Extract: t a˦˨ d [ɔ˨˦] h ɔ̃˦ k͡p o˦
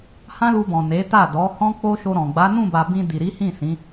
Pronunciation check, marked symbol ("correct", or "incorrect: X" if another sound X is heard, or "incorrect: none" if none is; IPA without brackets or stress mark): correct